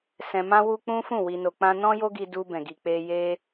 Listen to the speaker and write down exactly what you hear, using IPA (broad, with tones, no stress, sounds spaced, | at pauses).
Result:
s ɛ̃˧ m ã˦ w u˦ k͡p ũ˦ f ũ˦˨ w i˧ n o˧ k͡p ã˧ n ɔ̃˦ j o˦ ɡ i˧ d u˧ b ɛ̃˨ ɡ i˨ k͡p e˧ j e˧